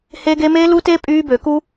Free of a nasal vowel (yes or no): yes